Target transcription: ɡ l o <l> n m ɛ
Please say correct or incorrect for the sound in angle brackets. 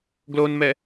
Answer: incorrect